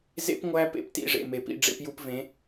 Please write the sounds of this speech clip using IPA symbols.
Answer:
z ḛ˦ p ŋʷ æ˦ p ḛ˦ p t ḭ˧ ʐ ḛ˨ m e˨ p ḭ˧ ɖ͡ʐ ḛ˧ p j u˧ p v ẽ˨˦

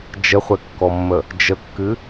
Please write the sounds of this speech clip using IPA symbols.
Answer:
d͡ʒ ə χʷ ɛ kː ɔ mː ə | d͡ʒ ə kː ɨ

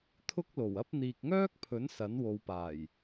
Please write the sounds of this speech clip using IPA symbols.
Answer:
t̪ʰ ʊ˥ k̚ l o˨˩ w ɐ˥ p̚ n̪ iː˨ k̚ ŋ œː˥ k̚ pʰ ɵ˨˥ n s ɐ˨˥ n w o˨˧ w p aː˨˩ j

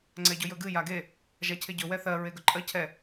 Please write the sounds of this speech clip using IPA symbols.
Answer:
ŋ͡ǀ ɛ ɟ ɵ j ɵ ɡ ɨ j a ɡ e | ʒ a cʰ e ɟ ɵ w ɛ θ ɜ ɹ e ɡ ɵ ǃʼ ɜ cʰ ɛ

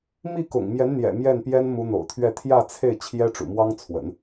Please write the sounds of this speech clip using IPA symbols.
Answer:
m i˥˩ k ʊ̰˨˩ ŋ m j ɛ˧˥ n n̪ j ɛ̰˨˩ m j ɛ˥˩ n p j ɛ˥ n m u˧˥ n̪ o̰˨˩ ʊ̯ t̪ʰ ɥ ɛ˥˧ t̪ʰ j ä˥˧ t͡sʰ e˥˩ ɪ̯ t͡ɕʰ j ɛ˥ ʈ͡ʂ ṵ˨˩ m w ɑ˥ ŋ t͡sʰ w ə̰˨˩˦ n

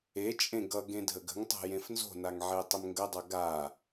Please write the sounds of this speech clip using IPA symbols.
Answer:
e t͡ʃʼ ẽ ɡ ʌ ɡ ẽ dʱ ə ɡ ə̤ ŋ tˤ o̤ j ẽ f n z o̤ n a ŋ ʕ e tˤ ə m ŋ ɡ ə dˤ ʌ ɡ a

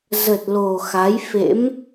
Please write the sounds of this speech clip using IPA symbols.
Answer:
z ə˨˩ t̚ l o˨˩ x a˨˦ j f ḛ˧˥ m

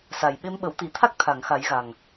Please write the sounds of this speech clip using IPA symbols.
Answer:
s a˨˩ j ɓ e˧˥ m ɓ ə˨˩˦ w t̪ i˨˩˦ t̪ʰ a˦˥ k̚ t̪ʰ a˨˩˨ ŋ x a˨˩˦ j ɣ a˨˩ ŋ

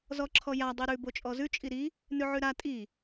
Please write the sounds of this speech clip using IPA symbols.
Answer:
z ɔ ǁʰ ɔ j a dˤ i ɾ ʉ b o t͡ʃʼ ɔ z ʉ t͡ʃʼ i ɾ i | n ʉ ʕ ʉ ɾ a tʼ i

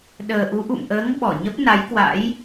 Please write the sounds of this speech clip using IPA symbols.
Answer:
ɗ əː˨˩ ʔ u˨˦ ʔ ṵ˧˨ m ʔ əː˨˦ ŋ ɓ ɔ˧˩ ɲ ə˦˥ p̚ n a˨˦ j k w a̰˧˥ j

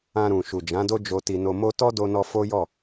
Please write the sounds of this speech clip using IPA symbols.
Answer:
ã˧ ɾ ũ˨ ʃ u˨ d͡ʒ ã˨˦ d o˦ d͡ʒ o˧ t i˧ n o˧ m o˦ t ɔ˦ d o˧ n ɔ˧ f o˦ j ɔ˦˨

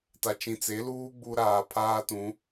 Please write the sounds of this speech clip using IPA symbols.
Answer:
t a˨ t͡ʃ ĩ˨ t͡s e˨˦ l uː˦ ɡ͡b u˦ ɾ aː˨ pʰ aː˦ t ũ˨˦

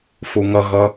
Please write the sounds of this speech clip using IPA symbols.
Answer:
f u ŋ ʌ ɣ ʌ

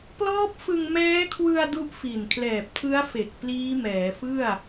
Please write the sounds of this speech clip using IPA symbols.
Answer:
p l ɔː˦˥ p̚ f ɯ˧ ŋ m ɛː˦˥ kʰ w ɯ˧ a̯ d u˦˥ ʔ f i˨˩ n kʰ l ɛː˨˩ p̚ tʰ ɯ˦˥ a̯ f e˨˩ k̚ p l iː˦˥ m ɛː˩˦ f ɯ˥˩ a̯

